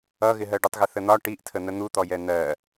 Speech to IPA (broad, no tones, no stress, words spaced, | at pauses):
ʌɣɪɦɜɖutˤ ɣɪθən̪ɒ ʈiʔtʰə n̪ən̪ut̪ɔjɛ n̪ɜ